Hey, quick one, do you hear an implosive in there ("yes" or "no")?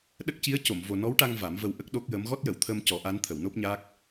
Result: yes